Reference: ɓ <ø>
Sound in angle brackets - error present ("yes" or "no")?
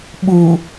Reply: yes